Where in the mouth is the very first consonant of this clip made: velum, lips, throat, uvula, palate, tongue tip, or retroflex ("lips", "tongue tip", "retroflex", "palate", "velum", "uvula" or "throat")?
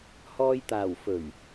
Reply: throat